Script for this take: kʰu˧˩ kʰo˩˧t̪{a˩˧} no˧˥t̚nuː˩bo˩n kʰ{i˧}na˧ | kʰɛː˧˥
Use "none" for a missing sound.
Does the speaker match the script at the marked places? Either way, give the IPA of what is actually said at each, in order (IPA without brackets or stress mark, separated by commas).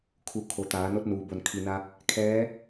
aː˩˧, i˩